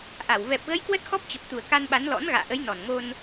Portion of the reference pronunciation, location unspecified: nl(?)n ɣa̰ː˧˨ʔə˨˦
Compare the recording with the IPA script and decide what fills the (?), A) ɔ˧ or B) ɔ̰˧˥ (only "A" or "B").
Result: B